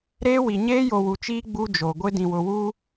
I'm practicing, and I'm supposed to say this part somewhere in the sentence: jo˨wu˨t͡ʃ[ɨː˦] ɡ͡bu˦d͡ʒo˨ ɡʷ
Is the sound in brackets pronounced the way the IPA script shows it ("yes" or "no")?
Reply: no